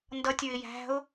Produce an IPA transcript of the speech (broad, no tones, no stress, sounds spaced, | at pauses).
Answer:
n d ʌ tʲ ə˞ ɪ̯ j æ̤ ʊ̯